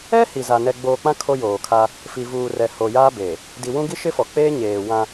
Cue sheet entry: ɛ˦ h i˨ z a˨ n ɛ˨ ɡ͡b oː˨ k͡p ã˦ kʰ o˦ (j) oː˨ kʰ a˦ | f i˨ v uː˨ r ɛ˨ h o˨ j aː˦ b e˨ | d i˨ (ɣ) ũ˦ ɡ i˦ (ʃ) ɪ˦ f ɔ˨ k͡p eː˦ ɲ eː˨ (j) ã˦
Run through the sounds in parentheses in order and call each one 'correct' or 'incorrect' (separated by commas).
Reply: correct, incorrect, correct, incorrect